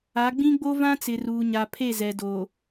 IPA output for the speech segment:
a˨˦ ɡ͡b ĩ˦ ɡ͡b o˦ v ã˦ t͡s ɪ˨ r uː˨ ɲ a˨ pʰ e˦˨ z ɛ˨ d oː˨

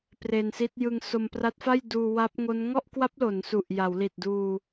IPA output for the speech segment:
p r e˧ n s i˦˥ t̚ j ɯ˧ ŋ s o˧ m p r a˦˥ t̚ f a˥˩ j d uː˧ w a˦˥ p̚ ŋ o˦˥ n ŋ ɔ˥˩ ʔ k w a˦˥ p̚ l o˩˦ n s u˨˩ ʔ j a˩˦ w l i˨˩ t̚ d uː˧

